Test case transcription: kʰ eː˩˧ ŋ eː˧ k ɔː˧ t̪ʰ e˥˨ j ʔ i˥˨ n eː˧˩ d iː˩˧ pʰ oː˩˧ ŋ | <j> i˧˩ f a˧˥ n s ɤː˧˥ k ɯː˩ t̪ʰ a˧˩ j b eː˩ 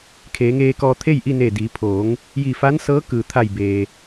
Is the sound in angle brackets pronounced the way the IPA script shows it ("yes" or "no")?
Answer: yes